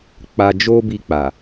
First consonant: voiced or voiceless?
voiceless